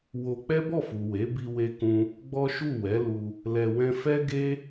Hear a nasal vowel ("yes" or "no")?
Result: yes